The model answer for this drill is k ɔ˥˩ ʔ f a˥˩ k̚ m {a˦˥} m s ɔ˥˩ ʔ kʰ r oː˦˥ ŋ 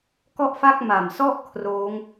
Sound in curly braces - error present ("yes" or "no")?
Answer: yes